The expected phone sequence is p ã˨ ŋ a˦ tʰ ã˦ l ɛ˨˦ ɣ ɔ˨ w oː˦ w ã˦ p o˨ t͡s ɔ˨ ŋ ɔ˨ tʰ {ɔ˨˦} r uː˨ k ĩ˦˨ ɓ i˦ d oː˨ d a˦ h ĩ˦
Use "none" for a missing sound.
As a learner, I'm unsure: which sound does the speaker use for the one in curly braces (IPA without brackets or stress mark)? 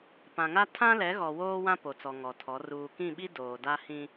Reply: ɔ˨˦